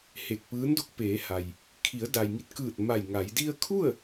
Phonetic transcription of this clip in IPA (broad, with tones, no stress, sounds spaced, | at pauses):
h e˧˩ k̚ p ɯː˧˥ n d o˧ k̚ p eː˩˧ h a˩ j | kʰ i˩˧ ə̯ d a˩ j ŋ i˧˩ t̚ k ɯː˧˩ t̚ m a˧˩ j ŋ a˩˧ j d i˧ ə̯ kʰ u˥˨ ə̯